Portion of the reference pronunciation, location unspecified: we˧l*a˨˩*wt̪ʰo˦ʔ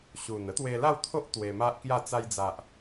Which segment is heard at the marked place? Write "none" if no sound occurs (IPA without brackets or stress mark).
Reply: a˥˧